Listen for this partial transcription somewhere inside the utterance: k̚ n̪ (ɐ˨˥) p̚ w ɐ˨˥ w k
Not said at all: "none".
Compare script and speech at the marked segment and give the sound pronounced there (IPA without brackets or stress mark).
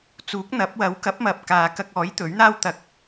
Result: ɐ˨˥